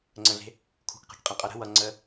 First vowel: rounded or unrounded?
unrounded